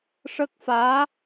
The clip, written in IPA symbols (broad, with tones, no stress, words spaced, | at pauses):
ʂə˦˥k̚faː˧˥